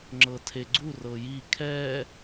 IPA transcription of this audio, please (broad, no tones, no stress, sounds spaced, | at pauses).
ŋ͡ǁ ɤ tʰ e ɡ͡ǀ u r ɤ j i kʰ ɛ